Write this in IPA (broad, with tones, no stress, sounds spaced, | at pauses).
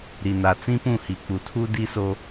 ɾ i˨ n a˨ t͡s ĩ˦ p ũ˦˨ h i˨ k͡p u˨ tʰ u˦ d i˦ s o˦